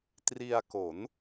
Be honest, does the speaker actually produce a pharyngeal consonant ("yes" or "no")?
no